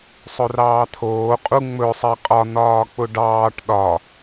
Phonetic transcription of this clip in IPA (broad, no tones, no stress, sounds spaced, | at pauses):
sˤ ɵ r ɑː t̪ʰ oː qʼ u ŋ͡m ɵ sˤ e qʼ ɒ n̪ ɒː k͡p ʊ ɖ ɑː ʈ ɗ ɒ